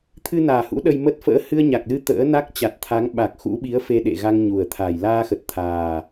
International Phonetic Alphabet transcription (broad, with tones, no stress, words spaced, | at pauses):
t̪ʰɨ˧naː˨˩hṵ˧˥ ɗə˧jmə˦˥t̚ fə̰ː˧˥hɨ˧ə̯ɲa˨˩k̚lɨ˧ t̪ə̰ː˧˥na˦˥k̚ t͡ɕa˨˩t̚t̪ʰa˨˦ŋ ɓa˨˩k̚xṵ˧˥ɓi˨˦ə̯ fe˧ɗḛ˧˨ ɣa˧ŋɲu˨˩ə̯ t̪ʰa˨˩j laː˧xə˨˩t̚t̪ʰaː˨˩